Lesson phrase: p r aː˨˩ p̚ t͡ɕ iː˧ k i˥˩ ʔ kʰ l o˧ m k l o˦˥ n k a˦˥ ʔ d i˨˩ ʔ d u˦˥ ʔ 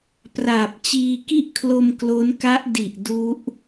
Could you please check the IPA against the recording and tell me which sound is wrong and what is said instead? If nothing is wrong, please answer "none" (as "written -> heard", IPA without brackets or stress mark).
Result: none